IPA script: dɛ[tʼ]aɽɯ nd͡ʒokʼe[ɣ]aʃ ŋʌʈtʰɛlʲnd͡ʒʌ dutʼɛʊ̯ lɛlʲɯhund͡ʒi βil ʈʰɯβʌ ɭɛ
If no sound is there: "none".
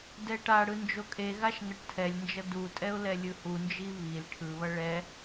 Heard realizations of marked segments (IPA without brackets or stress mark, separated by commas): ʈ, ɣ